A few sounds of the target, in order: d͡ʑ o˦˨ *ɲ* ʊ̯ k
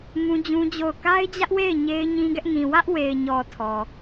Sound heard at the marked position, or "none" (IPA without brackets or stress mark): none